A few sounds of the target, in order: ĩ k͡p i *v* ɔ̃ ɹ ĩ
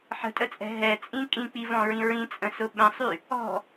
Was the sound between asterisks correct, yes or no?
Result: yes